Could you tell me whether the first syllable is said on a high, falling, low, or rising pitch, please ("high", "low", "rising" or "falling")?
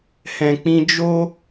low